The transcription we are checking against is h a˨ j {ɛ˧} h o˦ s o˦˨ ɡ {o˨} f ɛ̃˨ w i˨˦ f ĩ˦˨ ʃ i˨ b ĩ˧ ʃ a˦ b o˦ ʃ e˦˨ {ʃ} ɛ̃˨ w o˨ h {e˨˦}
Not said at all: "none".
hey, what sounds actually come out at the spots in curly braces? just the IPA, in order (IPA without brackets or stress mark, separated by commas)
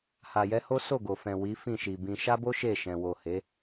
ɛ˧, o˨, ʃ, e˨˦